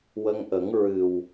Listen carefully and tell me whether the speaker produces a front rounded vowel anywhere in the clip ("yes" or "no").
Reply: no